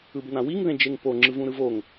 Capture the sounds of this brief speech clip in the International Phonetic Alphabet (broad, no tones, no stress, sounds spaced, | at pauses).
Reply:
ɯ b n ã w i ŋ ð ẽ d͡ʒ e ŋ p o ŋ͡ǁ ɯ v ũ ɾ ɯ v o ŋ